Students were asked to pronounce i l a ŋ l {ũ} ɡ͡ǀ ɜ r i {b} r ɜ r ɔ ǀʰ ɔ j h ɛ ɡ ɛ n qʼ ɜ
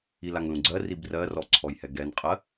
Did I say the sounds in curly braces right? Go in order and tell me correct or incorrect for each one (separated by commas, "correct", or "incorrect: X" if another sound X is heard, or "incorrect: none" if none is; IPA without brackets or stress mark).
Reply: correct, correct